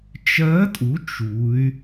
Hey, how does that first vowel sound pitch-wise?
rising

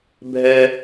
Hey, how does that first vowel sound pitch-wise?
high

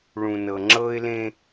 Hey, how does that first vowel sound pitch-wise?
low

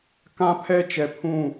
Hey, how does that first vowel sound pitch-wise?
high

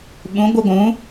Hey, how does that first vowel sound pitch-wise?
rising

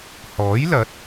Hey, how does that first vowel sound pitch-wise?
rising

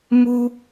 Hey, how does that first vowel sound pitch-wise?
high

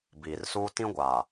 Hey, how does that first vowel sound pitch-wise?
low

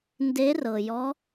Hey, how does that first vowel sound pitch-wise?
rising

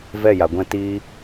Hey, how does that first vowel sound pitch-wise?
falling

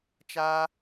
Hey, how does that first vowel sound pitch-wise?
high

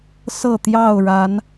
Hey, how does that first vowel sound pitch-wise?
falling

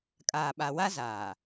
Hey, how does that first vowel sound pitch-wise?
low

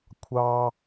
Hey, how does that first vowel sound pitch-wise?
high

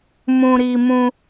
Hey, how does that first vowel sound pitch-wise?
high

